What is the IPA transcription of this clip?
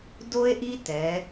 do˥e̯ʔi˥tɛ˩˧

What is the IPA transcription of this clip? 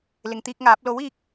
lɪ˨ŋt̪iː˧k̚ŋaː˨˥p̚ lo˨˥wiː˧k̚

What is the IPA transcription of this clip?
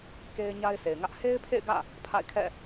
ke˦ɪ̯ɲa˦ɪ̯ se˨ɪ̯ŋä˦ʔ he˦ɪ̯pʰḛ˦˨ɪ̯ ɡä̰˦˨ | pʰa̰˦˨ɪ̯kʰɛ̰˦˨

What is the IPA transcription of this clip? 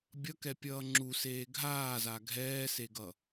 bʲʌkɛpʲʌː ŋ͡ǁuseː ɡʱaːza ɡʱɛːseɡʌ

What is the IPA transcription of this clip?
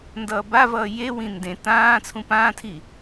ndʌːbavʌː jewĩ ndẽ tãː t͡sʰũpãːtʰi

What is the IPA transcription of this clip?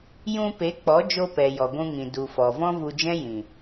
jũ˧ pe˨˦k͡pɔ˨˦d͡ʒo˧pɛ˨ jɔ˨ɡʷũ˧ŋĩ˨ du˨fɔ˨ vɔ̃˦vu˧d͡ʒɛ̃˦ jĩ˨

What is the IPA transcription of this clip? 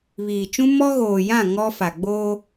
βiː˨t͡ʃũ˦ mɔ˦ɣoː˨jã˦˨ ŋɔ˦ fa˨ɡ͡boː˦

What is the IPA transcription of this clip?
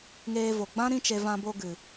ŋeː˧vo˨ɡ͡bã˦ ɾĩ˦t͡ʃe˧ vã˧bo˧ ɡɨ˨

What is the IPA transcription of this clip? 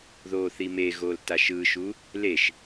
ðoːθimeɣoːl taʃɯːʃu | leʃ

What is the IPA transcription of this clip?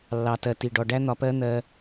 lːɑ˨tɜ˨ ti˨ ɖɔ˨ɖæ˦ n̪ɒ˧pɜ˦ n̪ɜ˧

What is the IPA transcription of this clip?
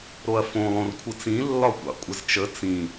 ɾoɐ̯fõ lˠõrkʷʰɯt͡sĩ lːɒkʷɑ̰kʷʼɘzt͡ʃə t͡sĩ

